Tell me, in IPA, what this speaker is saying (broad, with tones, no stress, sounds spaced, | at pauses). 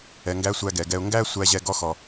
ɛ˩ ŋ ɡ æ˧ sʷ æ˧ ɡ ɛ˩ ɡ ɛ˧ ʊ̯ ŋ ɡ æ˥ sʷ æ˧ ʑ ɛ˧ ɡ ɔ˥ x ɔ˩